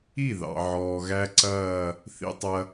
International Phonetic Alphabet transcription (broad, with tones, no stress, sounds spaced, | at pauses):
i˥˩ ð ɑ̰˩ ʕ ɔː˩ ɣ æ˥ ǀ ɐː˥˩ | θ ḭ˧ tˤ ɐ˧